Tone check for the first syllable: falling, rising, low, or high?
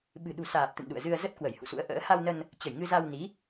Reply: low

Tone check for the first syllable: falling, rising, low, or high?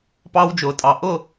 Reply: high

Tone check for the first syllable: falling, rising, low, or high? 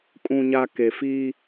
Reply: low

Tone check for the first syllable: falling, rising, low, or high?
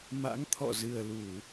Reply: rising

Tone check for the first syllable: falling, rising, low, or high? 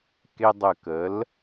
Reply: high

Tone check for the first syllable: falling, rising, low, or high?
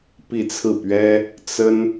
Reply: falling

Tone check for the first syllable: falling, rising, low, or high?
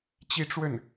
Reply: high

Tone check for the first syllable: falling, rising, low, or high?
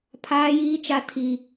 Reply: high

